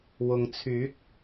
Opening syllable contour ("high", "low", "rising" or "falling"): low